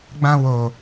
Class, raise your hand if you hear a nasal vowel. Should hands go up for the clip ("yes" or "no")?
yes